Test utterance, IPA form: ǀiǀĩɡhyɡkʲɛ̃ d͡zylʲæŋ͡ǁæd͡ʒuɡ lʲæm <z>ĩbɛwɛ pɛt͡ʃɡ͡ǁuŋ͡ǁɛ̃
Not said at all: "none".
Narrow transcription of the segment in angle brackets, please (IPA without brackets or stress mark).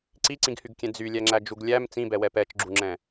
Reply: t͡s